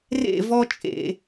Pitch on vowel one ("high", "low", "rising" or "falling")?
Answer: falling